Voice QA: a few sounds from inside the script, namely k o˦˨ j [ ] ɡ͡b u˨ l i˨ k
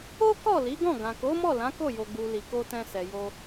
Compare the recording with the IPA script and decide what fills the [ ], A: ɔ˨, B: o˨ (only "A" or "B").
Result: B